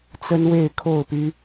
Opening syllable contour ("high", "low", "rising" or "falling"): high